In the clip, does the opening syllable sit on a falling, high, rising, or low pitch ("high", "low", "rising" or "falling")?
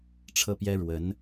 falling